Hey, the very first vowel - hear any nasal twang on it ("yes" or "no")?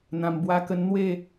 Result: yes